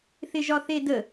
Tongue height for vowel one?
high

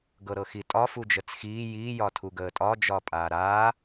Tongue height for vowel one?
mid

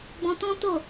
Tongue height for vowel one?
mid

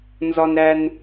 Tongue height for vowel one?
low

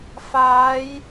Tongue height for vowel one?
low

